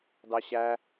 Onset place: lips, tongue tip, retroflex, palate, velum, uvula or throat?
tongue tip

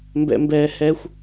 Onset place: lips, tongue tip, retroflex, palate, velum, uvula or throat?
lips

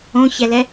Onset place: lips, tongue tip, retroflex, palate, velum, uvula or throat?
palate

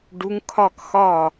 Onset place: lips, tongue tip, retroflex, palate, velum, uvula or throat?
retroflex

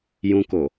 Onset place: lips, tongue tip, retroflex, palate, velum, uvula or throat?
palate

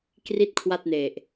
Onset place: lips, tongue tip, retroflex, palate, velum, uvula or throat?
velum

